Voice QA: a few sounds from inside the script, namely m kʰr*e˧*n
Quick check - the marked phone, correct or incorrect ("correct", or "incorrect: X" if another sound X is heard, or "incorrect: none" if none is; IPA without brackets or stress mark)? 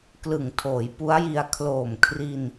incorrect: i˧